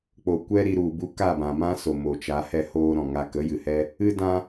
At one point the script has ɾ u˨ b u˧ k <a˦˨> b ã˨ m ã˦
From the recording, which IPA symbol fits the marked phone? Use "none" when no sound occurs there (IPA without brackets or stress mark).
a˦˨